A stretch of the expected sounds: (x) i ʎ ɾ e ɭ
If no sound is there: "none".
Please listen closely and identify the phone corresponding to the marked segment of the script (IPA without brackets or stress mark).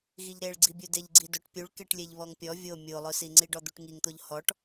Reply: ɣ